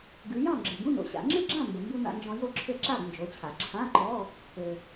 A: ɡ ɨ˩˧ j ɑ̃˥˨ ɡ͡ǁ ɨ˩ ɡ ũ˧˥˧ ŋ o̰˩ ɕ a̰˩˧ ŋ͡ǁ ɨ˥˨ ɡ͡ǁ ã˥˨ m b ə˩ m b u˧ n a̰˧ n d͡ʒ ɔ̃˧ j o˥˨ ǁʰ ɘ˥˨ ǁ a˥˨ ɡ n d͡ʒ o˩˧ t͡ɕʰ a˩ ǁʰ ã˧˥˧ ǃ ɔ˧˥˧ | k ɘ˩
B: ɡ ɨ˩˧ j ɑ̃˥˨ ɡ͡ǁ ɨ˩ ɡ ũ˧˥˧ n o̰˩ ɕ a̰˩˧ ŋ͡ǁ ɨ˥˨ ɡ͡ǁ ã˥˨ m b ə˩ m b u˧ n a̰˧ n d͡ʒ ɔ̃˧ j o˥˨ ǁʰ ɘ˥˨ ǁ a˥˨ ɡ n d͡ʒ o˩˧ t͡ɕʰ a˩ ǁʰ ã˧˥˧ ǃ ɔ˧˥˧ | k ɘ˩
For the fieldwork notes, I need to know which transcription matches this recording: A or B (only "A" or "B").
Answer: B